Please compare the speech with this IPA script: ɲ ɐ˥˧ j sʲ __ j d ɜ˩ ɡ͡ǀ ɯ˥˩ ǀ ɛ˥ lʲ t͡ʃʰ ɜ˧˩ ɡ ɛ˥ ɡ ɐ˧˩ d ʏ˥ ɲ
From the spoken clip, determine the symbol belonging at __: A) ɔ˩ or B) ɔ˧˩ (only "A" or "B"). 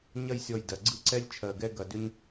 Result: B